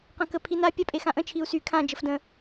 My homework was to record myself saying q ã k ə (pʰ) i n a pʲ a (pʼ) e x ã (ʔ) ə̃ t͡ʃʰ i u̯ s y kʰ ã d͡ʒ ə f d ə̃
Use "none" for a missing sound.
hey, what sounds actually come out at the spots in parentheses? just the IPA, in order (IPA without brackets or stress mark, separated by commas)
pʰ, pʼ, ʔ